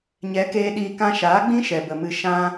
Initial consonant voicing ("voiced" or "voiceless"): voiced